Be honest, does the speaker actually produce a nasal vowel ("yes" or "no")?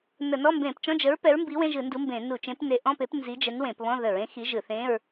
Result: yes